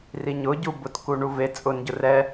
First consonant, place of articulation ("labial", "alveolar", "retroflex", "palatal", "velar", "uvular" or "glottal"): alveolar